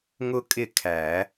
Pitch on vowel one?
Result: high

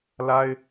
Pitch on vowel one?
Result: high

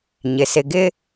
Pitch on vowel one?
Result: low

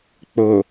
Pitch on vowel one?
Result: low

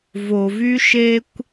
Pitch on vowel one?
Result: low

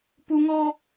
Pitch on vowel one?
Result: high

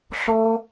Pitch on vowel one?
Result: high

